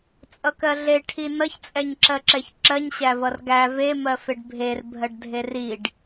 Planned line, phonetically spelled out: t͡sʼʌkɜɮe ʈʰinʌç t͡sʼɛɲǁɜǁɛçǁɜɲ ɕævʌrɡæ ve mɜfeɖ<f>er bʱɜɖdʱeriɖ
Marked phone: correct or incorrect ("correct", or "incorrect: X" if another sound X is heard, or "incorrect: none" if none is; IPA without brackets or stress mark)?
incorrect: bʱ